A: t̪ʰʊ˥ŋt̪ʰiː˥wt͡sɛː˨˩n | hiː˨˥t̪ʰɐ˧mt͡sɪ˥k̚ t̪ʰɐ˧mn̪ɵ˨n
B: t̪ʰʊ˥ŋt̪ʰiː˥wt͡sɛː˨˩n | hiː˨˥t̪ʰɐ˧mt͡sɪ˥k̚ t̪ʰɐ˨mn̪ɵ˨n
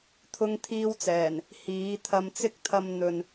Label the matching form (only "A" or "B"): A